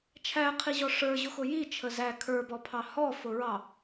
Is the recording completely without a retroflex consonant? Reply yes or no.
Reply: no